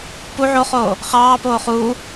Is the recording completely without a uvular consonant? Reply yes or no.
no